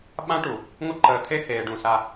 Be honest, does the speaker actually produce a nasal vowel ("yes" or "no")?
yes